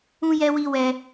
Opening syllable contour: high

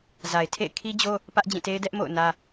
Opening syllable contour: low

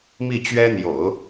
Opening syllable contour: falling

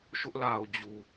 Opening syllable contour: high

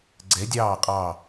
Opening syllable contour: rising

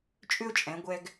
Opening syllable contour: high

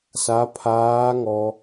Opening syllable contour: high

